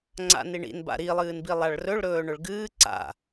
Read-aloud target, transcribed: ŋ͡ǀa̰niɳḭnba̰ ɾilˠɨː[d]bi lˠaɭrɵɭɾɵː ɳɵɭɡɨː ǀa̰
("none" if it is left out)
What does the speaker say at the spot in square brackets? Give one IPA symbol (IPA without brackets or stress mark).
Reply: n